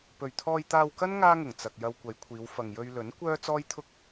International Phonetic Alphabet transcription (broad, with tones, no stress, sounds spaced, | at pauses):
p ɵ˨ ɥ t̪ʰ ɔː˧ j t̪ aː˧ w k ɐ˥ n ŋ aː˥ ŋ ʊ˨˩ ŋ t͡s ɐ˨ k̚ j ɐ˧ w kʷ ɐ˨˧ j kʷʰ iː˨˧ w f ɐ˨ ŋ j ɵ˧ ɥ l ɵ˨˥ n kʷ œː˥ t͡s ɔː˥ j t̪ʰ ʊ˥ k̚